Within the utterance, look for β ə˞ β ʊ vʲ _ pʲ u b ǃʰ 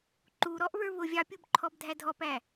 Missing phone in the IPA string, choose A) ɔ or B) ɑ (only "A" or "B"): B